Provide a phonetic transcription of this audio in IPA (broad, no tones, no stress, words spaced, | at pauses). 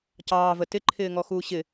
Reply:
cɑːvə tɪǃʰɪːŋɔxuː ɕɪ